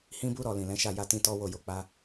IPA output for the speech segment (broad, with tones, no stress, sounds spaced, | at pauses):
h ĩ˦ b u˦ ɾ ɔ˦˨ l ĩ˨ l ɛ̃˨˦ ʃ a˦˨ j a˧ t ĩ˧ t ɔ˦ w o˦˨ j o˧ k͡p a˦